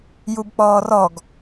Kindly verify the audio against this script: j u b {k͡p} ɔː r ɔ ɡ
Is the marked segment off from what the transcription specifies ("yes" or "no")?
no